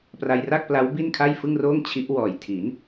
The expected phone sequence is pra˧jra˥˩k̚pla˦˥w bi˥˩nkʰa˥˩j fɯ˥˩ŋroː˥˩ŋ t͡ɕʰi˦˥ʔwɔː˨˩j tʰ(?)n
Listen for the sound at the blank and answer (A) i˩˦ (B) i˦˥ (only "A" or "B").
A